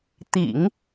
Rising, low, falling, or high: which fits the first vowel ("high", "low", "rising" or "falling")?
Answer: low